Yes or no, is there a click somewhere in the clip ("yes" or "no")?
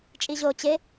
no